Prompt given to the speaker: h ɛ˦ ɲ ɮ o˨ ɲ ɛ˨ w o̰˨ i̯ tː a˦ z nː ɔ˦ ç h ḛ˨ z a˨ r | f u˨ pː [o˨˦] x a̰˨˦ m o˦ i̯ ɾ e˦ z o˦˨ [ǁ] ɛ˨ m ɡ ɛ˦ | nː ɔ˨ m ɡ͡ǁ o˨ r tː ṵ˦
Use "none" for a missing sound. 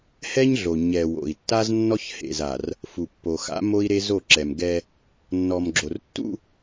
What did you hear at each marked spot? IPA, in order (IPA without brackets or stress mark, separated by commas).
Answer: o˨, ǁ